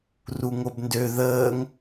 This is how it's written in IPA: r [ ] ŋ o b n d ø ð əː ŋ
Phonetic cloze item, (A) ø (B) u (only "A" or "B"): B